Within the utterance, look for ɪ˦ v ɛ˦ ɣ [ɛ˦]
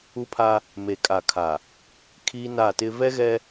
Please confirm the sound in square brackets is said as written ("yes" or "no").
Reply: yes